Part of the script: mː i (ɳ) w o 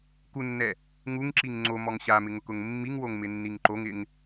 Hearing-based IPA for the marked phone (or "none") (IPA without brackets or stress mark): ŋ